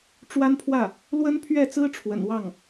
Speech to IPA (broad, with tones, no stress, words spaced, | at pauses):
ʈ͡ʂwa˥npʰwä˥˩ | lwə˥npʰɥɛ˥˩t͡sɹ̩˥ ʈ͡ʂʰwə̰˨˩nwɑ˥˩ŋ